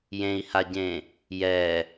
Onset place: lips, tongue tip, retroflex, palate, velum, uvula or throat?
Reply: palate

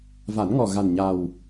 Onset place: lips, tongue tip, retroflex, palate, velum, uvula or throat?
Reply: lips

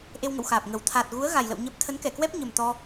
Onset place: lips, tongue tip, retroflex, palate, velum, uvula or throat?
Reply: throat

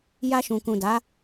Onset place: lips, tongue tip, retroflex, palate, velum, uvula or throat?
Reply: palate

